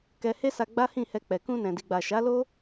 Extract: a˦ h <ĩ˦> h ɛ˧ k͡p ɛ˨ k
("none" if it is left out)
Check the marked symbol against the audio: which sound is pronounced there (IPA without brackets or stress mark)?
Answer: ĩ˦˨